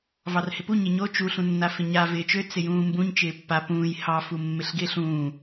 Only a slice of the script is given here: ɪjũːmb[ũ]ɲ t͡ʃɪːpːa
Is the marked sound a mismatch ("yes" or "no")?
no